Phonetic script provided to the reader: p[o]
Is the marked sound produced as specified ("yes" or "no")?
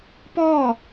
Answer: no